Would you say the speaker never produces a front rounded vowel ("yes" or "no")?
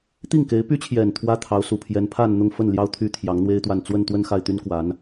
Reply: no